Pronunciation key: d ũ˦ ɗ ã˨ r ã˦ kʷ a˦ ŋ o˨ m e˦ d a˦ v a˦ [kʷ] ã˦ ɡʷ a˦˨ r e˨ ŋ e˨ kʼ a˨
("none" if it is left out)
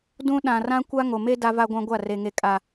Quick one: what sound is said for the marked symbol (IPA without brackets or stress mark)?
ɡʷ